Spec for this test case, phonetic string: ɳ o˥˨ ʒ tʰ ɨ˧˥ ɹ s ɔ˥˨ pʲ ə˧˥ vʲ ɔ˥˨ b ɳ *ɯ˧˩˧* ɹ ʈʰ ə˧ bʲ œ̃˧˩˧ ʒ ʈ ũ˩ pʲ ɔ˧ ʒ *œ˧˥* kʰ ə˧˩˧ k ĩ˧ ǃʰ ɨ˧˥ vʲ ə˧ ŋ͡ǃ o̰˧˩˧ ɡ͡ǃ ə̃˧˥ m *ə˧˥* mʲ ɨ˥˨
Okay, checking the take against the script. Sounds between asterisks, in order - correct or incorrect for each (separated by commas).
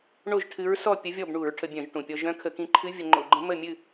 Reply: incorrect, incorrect, incorrect